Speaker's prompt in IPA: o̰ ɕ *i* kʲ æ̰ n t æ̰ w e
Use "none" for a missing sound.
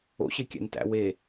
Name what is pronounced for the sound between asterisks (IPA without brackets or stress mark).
e